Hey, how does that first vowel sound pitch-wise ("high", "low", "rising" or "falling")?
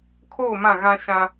falling